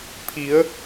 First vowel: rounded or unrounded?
unrounded